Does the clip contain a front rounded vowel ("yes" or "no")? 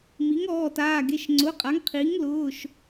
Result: no